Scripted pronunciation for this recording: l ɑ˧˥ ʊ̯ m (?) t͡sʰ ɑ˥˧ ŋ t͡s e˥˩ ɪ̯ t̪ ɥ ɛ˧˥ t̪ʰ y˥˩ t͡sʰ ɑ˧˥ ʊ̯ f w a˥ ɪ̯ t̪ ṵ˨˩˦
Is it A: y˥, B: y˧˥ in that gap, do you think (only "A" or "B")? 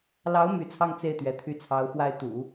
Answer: B